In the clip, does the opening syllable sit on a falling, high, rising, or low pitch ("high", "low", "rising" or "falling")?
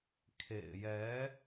low